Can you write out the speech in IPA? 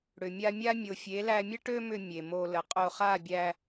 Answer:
ɽ ʏ˨ mʲ a˧ mʲ a˦ mʲ o˨ fʲ e˨˦ l æ˧ mʲ ə˦ ʈ ø˦ m ʏ˧ mʲ e˨ m o˧ l ə˨ qʼ o˧ χ a˦˨ bʲ æ˧

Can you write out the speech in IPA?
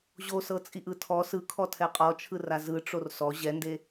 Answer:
ʑ o s ɤ t͡sʼ i ʔ ɯ tʰ ɔ s ɯ kʰ ɔ tʰ ɛ qʼ ɔ t͡ʃʰ ɯ r a z ɯ ʈ͡ʂ o r s ɔ ʑ ɛ n d e

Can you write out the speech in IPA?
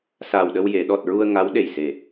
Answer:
s aː˨˩ w ɗ ə˧ w j e˨˩˨ ɗ ɔ˨˩ t̚ ɹ u˧ ə̯ ŋ a˧˥ w ɗ e˨˩ j s e˨˩

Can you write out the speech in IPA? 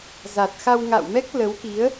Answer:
z a˨˩ t̚ x a˧ w ŋ a̰ː˧˨ w m ɛ˦˥ k̚ l ə˨˦ w k i˨˦ ə̯

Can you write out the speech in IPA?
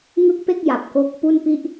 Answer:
ŋ ɯ˥˩ k̚ p e˥˩ k̚ j a˨˩ p̚ k o˦˥ k̚ p u˥˩ n p i˥˩ ʔ

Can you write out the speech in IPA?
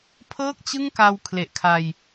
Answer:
pʰ ɤː˥˩ k̚ t͡ɕ ɯ˥˩ ŋ k a˧ w kʰ l e˨˩ ʔ kʰ a˧ j

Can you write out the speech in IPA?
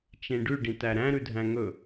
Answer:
t͡ʃ ẽ ɖ ʉ ɖ ĩ t æ ɾ æ̃ ɾ ʉ dʱ æ̃ ŋ ɵ

